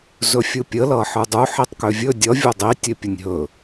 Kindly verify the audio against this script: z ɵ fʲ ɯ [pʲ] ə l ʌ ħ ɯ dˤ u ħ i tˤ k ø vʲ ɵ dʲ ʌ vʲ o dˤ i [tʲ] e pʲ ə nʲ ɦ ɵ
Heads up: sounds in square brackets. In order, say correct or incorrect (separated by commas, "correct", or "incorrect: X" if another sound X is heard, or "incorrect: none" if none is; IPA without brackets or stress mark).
correct, correct